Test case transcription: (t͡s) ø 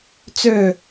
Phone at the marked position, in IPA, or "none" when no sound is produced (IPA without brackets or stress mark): t͡s